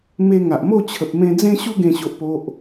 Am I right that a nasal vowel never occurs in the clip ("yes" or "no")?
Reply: no